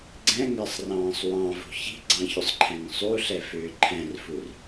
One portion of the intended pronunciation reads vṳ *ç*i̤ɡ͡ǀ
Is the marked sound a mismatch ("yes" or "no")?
no